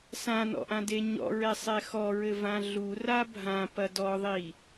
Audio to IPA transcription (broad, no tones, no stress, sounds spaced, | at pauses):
s ã n ɔ̰ ʔ ã d e ɲ ɔ̰ ɹ ɛ sˤ ɛ x ɔ ɹ ɘ v ã ɮ u r a bʱ ã p ɐ d ɔ ðˤ i